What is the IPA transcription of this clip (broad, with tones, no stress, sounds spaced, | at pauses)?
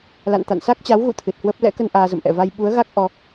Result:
l a̰˧˨ n t̪ a̰˧˨ n s a˦˥ k̚ t͡ɕ a˨˦ w ɣ ṵ˧˨ t̪ʰ ɨ˨˩ t̚ h w ə˦˥ p̚ l ɛ̰˧˥ k ə˧ n ʔ aː˧ z ə̰˧˨ m ʔ ɛ̰˧˨ v a˧ j ɓ u˨˦ ə̯ ɣ a˦˥ k̚ ʔ ɔ˧